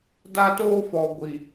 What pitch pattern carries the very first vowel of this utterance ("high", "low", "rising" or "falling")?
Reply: high